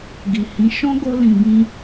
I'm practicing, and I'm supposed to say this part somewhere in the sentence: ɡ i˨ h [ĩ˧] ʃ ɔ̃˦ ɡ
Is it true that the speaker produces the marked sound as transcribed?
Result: no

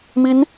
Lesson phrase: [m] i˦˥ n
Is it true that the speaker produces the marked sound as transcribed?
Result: yes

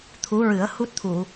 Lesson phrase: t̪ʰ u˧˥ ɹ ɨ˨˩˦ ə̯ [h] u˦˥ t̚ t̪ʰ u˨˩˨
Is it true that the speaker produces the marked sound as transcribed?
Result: yes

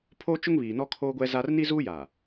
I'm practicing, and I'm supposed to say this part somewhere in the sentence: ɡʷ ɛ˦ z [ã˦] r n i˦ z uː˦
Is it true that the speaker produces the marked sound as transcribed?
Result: no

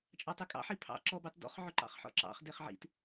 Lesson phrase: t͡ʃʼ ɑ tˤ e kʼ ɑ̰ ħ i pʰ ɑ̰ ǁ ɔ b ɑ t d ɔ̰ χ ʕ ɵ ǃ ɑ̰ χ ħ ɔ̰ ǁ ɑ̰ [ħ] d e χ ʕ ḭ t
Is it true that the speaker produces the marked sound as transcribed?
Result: no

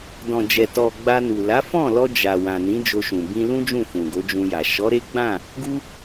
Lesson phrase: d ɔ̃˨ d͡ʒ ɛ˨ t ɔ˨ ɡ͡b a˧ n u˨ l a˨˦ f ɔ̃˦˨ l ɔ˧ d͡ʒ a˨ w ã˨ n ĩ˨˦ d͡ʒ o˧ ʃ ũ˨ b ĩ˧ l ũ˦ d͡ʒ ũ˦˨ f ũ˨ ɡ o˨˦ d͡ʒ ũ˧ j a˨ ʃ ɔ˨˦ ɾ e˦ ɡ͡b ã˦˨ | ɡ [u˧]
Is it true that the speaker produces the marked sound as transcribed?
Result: yes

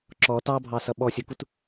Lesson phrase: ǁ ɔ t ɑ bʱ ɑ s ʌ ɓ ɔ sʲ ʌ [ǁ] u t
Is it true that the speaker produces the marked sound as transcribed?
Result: no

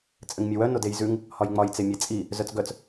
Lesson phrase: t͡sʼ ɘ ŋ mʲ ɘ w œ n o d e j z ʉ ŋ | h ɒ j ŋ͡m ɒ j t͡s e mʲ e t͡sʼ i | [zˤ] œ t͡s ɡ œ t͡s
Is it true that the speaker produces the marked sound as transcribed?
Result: no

